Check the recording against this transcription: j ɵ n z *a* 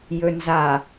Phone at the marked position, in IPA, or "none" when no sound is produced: a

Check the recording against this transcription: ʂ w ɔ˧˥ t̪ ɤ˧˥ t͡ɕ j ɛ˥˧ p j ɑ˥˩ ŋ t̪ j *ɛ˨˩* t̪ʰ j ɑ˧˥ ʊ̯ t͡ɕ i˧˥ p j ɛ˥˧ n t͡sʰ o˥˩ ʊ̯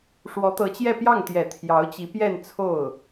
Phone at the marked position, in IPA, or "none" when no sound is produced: ɛ˨˩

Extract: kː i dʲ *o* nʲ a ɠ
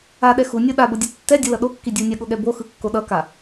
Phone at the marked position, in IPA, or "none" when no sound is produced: u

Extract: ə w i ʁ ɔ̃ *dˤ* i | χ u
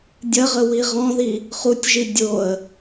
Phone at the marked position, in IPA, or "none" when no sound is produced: ð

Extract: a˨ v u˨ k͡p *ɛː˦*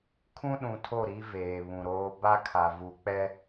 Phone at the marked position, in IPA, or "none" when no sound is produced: ɛ˦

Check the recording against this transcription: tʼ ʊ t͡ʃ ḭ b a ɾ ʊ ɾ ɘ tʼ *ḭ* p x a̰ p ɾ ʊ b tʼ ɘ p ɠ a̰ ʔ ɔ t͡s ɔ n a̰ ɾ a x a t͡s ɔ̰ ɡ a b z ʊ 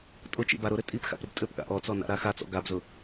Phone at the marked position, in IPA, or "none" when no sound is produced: i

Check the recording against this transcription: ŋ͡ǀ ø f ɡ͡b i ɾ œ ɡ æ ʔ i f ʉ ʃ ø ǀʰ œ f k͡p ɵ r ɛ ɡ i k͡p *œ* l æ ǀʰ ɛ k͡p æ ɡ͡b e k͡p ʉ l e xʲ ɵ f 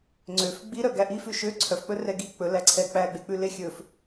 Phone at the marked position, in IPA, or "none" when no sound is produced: ɵ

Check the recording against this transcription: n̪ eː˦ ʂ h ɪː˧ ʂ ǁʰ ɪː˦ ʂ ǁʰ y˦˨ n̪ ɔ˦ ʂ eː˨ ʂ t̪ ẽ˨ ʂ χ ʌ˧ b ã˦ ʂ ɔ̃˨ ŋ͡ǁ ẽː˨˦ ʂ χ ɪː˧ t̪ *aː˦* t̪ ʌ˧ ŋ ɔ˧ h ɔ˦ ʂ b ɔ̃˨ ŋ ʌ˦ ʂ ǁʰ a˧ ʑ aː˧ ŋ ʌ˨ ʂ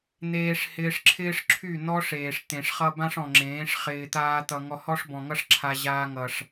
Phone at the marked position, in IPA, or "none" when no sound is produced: aː˦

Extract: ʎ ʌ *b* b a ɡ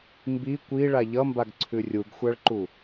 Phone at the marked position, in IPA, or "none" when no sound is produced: m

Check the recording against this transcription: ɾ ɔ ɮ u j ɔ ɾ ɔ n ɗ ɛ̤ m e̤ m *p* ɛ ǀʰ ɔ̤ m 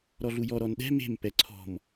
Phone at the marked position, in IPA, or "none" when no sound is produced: p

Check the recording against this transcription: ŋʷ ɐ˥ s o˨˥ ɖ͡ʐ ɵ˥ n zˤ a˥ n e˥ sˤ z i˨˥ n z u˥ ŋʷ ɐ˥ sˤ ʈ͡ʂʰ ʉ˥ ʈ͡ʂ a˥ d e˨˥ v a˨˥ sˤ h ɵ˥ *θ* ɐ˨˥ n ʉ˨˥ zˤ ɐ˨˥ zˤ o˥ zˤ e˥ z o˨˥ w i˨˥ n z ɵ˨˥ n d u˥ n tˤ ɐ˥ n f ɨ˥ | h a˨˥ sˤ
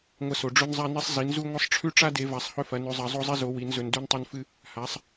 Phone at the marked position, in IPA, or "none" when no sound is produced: f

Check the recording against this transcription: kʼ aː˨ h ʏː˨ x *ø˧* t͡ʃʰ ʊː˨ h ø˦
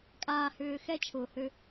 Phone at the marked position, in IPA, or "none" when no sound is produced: ɛ˧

